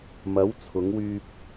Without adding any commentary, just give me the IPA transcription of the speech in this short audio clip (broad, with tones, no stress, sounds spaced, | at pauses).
m ɐ˨˧ w t͡sʰ ʊ˨˧ ŋ w yː˧ p̚